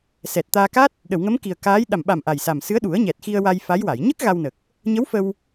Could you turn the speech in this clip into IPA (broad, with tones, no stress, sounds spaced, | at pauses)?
s ɛ˨˩ t̚ t̪ aː˧ k a˦˥ t̚ | ɗ ə˨˩˨ w ŋ ə˧˥ m k i˨˩ ə̯ k aː˧˥ j ɗ a˨˩ m ɓ a˨˩ m ʔ a˨˩ j s a˨˩ m s ɨ˧˥ ə̯ ɗ u˨˩˦ ə̯ ɲ ɛ˨˩ t̚ x i˧ ə̯ w a˧ j f a˧˥ j w a˨˩˨ j ɲ ə˦˥ k̚ ɣ a˧ w n ə˨˩ k̚ | ɲ ə˧˥ w f ə˧ w